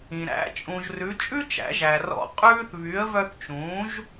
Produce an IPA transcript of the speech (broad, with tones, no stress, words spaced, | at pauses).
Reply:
ĩ˩ ɾæ̰˩˥t͡ʃʼũ˩ʒ rʉ˩˥ t͡ʃʼʉ˥t͡ʃæ̰˩˥ʒæ˩ rɔ̰˧qʼʉː˥θ βy˩˥ə̯vœ˧θt͡ʃũː˩˥ʒ